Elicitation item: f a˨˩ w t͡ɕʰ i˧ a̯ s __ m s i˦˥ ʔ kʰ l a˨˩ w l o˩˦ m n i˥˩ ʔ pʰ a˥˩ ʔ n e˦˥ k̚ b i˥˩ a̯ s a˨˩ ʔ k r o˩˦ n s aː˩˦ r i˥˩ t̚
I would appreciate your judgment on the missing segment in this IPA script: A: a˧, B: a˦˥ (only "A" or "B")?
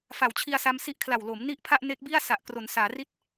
A